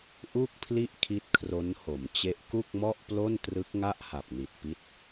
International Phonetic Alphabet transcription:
ʔu˥˩k̚pʰli˥˩ʔkʰi˦˥t̚ kʰro˦˥nho˩˦mt͡ɕe˦˥ʔ ku˥˩k̚mɔ˥˩ʔplo˥˩ntrɯ˦˥k̚ ŋa˥˩ʔha˨˩p̚ni˨˩t̚pi˦˥t̚

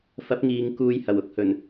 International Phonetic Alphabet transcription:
fɐ˨˥p̚ŋiː˨ŋ kuː˧jhɐ˨˩w ʊ˧k̚hɵ˨˩n

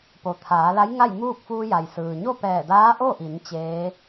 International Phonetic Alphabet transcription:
po˩t̪ʰaː˩˧ la˧˥jŋa˥˨jmuː˥˨k̚ fuː˧ja˩jsɯː˩ ɲo˥˨pɛː˧˩ daː˧˥ʔo˥˨ʔi˩˧n t͡ɕeː˧˥

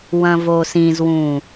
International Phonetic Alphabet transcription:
wɐ̃vosĩzwũ

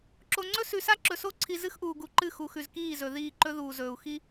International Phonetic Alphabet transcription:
ǁo˨ŋ͡ǀɵ˦ sʉ˨sa˦ ǁɵ˨so˦ǀʰi˨ zɨ˦xʔuː˨ɡu˨ǃɨ˦˨ xu˨xʉ˨z kiː˦˨zɵ˨ ðiː˦˨ǃɵ˦ðuː˨zɵː˨u̯ xi˦

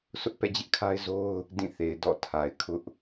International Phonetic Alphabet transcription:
sʊ˦ʔpɛ̰˦˨d͡ʑɪ˦ʔ kʰa˦ɪ̯zo˦ʊ̯ | dĩ˦˨θe˨ɪ̯ dɔ̰˦˨tʰa˨ɪ̯ kʰʊ˦ʔ

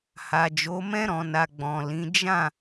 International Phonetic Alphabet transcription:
ha˨d͡ʒo˨˦mɛ̃˦ ɾɔ̃˧na˧ ɡ͡bɔ̃˨lĩ˨˦ d͡ʒã˦˨

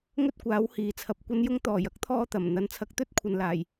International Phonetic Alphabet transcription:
ŋɵ˥t̚kʷaː˨˥w hiː˨t͡sʰɐ˧p̚kʷɐ˥njʊ˥ŋ t̪ɔː˨˩jɐ˥k̚t̪ʰɔː˧ t̪ɐ˨˩m n̪ɐ˨˥nt͡sʰɐ˨˥k̚t̪ɵ˥t̚kʷʰɐ˨n laː˨˩j

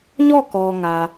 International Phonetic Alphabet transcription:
ɲɔ˦˨kɔ˨ ŋä˨

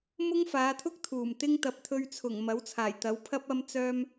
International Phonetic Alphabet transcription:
mʊ˥ŋfaː˨˧t̪ʰʊ˥k̚ t̪ʰuː˨˩mt̪ɪ˥ŋ t̪ɐ˨p̚t̪ʰɵ˧ɥt͡sʰʊ˨˩ŋ mɐ˨˥wt͡sʰaː˨˩jt̪ɐ˨˥w pʰɐ˥p̚ ɐ˧mt͡sœː˧m

